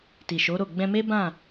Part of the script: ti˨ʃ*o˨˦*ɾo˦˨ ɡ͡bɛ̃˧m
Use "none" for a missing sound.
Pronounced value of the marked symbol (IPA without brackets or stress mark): o˨˦